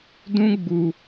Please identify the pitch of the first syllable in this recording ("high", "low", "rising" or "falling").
high